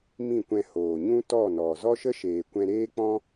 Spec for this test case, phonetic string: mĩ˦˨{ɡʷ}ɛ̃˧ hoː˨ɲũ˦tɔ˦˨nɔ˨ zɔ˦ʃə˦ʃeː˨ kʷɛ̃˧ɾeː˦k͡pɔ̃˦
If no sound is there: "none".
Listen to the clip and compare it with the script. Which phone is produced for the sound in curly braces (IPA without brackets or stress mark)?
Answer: kʷ